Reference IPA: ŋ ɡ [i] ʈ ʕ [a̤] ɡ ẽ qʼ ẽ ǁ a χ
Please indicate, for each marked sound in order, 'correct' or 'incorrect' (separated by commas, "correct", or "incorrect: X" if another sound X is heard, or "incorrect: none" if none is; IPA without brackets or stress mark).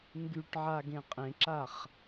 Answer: incorrect: y, incorrect: a